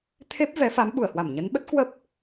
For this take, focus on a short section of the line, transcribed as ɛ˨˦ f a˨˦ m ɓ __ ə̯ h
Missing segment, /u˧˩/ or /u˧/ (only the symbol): u˧˩